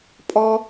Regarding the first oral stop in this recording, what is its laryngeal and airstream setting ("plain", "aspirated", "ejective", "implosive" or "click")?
ejective